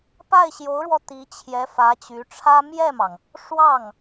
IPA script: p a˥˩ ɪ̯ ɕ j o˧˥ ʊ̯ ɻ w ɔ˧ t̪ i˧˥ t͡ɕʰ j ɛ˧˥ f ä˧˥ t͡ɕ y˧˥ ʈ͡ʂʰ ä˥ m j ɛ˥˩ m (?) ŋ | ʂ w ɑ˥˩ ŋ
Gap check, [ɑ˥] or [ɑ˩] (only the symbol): ɑ˩